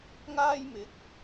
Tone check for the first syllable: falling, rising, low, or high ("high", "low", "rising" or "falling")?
high